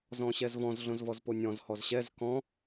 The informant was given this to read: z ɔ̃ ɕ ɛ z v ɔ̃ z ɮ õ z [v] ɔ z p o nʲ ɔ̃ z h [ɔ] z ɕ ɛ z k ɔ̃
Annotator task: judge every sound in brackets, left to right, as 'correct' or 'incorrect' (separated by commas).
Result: correct, correct